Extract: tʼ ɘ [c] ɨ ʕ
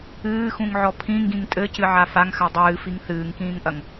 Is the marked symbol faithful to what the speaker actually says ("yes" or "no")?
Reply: yes